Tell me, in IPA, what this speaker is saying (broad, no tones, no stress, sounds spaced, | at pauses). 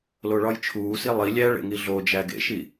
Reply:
l o ɭ ɒ j t͡ʃʰ uː s i lˠ i lʲ æ ɭ ḛ ŋ i ɮ o d͡ʒ æ ɡ ḛ ʃ i